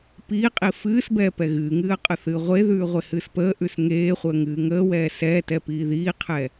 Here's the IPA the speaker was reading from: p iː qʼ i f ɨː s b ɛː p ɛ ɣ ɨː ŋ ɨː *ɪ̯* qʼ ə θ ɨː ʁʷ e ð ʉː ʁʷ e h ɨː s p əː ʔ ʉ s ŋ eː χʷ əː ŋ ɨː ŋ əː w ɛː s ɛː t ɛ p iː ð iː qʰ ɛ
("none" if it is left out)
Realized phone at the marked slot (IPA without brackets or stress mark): ə̯